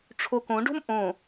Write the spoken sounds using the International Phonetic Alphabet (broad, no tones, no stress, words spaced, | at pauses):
ʈ͡ʂʰokõɖo̤m ʔõ